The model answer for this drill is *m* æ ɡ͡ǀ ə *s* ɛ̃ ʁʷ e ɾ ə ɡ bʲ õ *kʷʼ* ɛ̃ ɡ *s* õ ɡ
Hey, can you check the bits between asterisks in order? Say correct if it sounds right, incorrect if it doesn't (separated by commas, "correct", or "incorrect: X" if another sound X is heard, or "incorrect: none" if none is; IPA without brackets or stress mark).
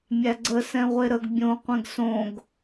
incorrect: mʲ, correct, incorrect: qʷ, correct